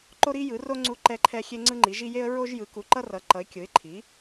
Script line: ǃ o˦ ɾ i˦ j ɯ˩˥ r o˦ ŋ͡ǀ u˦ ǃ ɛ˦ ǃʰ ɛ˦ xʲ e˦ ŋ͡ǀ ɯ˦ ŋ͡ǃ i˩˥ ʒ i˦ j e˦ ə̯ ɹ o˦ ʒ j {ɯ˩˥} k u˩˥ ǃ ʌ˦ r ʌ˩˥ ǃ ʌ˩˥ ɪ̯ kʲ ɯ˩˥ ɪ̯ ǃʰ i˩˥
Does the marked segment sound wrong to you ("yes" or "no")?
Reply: no